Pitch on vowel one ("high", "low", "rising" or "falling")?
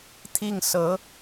falling